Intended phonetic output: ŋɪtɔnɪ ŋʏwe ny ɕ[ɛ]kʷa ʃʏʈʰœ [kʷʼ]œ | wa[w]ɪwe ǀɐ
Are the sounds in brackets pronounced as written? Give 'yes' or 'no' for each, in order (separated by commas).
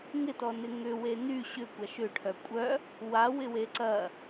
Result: no, yes, yes